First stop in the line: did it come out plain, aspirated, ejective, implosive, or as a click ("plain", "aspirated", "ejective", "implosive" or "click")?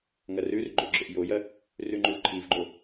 click